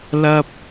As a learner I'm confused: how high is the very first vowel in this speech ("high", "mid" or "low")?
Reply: low